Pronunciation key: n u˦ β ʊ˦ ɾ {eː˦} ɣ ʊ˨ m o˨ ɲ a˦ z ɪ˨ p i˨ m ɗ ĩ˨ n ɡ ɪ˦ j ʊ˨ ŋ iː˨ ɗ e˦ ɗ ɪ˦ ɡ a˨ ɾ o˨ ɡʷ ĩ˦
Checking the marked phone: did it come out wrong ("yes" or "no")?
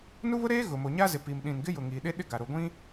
no